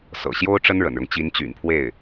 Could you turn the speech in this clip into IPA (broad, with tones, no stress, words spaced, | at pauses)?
sɤ̰˨˩ɕjo˥ʊ̯ ʈ͡ʂə˥nɻə̰˨˩nɻʊ˦ŋ t͡ɕi˧˥nt͡ɕy̰˨˩npʰwe˥˩ɪ̯